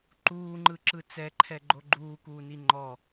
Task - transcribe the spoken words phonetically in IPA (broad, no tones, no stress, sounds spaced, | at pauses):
ǃ uː ŋ͡ǃ ɯ ǁ ɯ t͡s ɛ ǃʰ ɛ ɡ͡ǃ o ɡ͡ǃ uː k uː n i ŋ͡ǃ ɔ